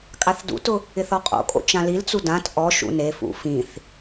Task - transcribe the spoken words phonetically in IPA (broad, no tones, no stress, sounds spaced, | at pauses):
kʼ a θ d ṵ t ʊ | ɪ θ ɔ qʼ o̰ kʼ o̰ t͡ʃ ã l i l t͡s u d ã t ʔ ɔ ʃ ṵ n e f ṵ f ĩ θ